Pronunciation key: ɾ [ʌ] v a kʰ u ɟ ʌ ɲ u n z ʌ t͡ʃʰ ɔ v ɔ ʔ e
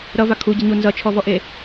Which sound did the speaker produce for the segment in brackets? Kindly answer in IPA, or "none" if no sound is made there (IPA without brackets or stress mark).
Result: ʌ